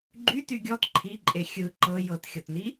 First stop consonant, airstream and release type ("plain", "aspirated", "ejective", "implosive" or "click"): click